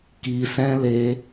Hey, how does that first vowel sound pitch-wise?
low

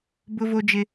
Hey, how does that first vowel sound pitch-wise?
high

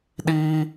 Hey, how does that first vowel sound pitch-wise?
high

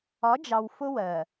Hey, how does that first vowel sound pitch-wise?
rising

